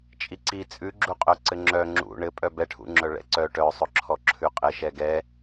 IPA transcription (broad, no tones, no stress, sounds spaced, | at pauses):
t͡ʃʼ i ǀ i t͡sʼ ʉ ɡ͡ǁ u qʼ œ ǀ ɘ ŋ͡ǁ œ ŋ͡ǁ ṵ ɳ ɘ pʼ œ b ɛ ʈʰ ṵ ŋ͡ǁ œ ɭ ɛ̰ ǀ œ ʈ œ sˤ ɵ ǁʰ ɔ ǁʰ ʉ qʼ ɘ ʃ ɛ ɡ ɛ